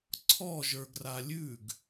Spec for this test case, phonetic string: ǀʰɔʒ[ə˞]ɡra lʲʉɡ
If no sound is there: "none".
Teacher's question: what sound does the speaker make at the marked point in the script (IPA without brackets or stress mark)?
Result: ə˞